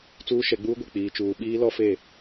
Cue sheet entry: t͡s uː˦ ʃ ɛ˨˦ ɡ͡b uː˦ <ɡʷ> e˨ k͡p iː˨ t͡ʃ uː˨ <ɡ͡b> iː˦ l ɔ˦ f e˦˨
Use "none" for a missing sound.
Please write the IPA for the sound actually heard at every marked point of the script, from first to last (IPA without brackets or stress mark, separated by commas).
ɡʷ, ɓ